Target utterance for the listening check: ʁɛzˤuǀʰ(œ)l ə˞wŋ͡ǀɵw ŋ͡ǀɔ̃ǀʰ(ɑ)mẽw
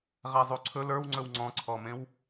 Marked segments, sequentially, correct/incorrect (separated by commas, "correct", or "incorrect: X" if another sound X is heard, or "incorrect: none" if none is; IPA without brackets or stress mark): incorrect: ɵ, incorrect: ɔ